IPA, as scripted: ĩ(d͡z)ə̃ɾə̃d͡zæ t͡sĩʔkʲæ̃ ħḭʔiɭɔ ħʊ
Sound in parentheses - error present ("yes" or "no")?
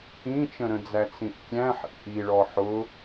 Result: yes